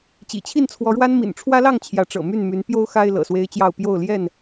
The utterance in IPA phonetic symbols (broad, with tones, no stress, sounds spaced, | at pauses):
t͡ɕ ḭ˨˩ t͡ɕʰ i˥˨ n t͡sʰ w ɔ˨˦ ɻ w a˦ n m ḭ˨˩ n ʈ͡ʂʰ w ä˦ l ɑ˥˨ ŋ t͡ɕʰ j ä˨˦ ʈ͡ʂ ɤ̰˨˩ m y˥˨ n m y˨˦ n p j o˦ ʊ̯ x a˦ ɪ̯ l ɤ̰˨˩ s w e˦ ɪ̯ t͡ɕ j ɑ˥˨ ʊ̯ p j o˥˨ ʊ̯ l j ɛ˥˨ n